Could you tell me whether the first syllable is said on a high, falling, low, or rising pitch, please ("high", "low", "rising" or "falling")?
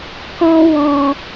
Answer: high